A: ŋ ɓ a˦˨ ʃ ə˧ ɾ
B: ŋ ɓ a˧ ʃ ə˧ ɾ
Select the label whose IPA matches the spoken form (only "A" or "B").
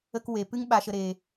B